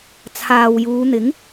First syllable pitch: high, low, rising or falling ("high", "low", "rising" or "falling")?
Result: low